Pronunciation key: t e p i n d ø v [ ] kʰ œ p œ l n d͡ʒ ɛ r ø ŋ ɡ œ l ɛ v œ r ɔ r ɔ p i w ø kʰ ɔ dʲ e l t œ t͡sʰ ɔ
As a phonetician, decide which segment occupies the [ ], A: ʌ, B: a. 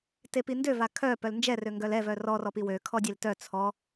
B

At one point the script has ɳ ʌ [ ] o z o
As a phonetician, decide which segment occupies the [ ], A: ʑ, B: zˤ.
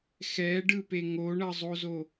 B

